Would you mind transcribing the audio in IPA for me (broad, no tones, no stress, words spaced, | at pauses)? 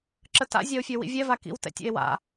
ǁəta̰ zʲao̯fʲœwḭvʲɛ vakḭw tɛ̰tʲɛ̰e̯wa̰